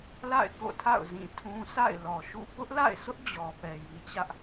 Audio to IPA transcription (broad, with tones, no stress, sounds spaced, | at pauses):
l a̰˦˨ ɪ̯ k o̰˦˨ tʰ a̰˦˨ ʊ̯ z ĩ˦˨ tʰ ũ˦ s a̰˦˨ ɪ̯ l ɔ˨ ʃ ṵ˦˨ p ʊ˦ ʔ l a̰˦˨ ɪ̯ sʰ ʊ˦ ʔ d͡ʑ ɔ˨ p ɛ˨ j i˨ t͡ɕ ä˦ ʔ